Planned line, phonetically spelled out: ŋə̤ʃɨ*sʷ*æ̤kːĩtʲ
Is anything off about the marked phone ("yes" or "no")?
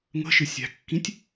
yes